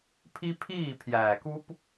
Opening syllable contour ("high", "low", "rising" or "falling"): high